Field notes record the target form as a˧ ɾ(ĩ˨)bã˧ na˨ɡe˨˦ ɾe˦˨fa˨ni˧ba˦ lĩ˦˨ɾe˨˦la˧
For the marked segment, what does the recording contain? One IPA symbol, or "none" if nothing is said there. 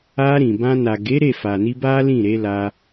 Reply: ĩ˨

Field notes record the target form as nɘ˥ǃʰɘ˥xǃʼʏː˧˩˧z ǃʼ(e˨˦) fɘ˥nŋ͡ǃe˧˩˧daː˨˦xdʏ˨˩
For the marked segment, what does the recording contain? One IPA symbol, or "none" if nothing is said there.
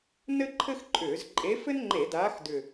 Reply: e˨˦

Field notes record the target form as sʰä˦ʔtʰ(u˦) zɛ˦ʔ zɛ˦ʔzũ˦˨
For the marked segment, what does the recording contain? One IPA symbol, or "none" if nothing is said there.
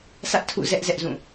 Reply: ṵ˦˨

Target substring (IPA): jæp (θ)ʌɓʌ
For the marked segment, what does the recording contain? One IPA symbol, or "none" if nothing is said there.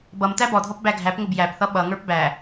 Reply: θ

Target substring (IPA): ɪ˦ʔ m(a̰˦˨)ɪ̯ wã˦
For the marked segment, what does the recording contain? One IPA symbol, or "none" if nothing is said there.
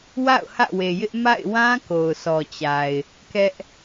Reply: a̰˦˨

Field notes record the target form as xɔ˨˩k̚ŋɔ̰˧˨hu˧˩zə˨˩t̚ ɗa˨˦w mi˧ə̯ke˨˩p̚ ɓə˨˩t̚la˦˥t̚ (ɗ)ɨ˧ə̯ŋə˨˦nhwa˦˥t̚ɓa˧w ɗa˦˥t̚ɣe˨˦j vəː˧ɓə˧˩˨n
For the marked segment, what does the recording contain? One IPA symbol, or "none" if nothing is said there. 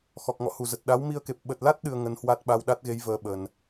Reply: ɗ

